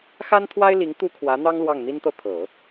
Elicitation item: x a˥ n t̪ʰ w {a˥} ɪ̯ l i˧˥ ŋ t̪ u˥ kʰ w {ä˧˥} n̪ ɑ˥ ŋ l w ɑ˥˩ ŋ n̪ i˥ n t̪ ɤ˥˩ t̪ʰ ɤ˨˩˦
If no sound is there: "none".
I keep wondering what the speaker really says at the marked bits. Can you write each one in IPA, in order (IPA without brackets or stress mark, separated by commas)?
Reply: a˥, ä˧˥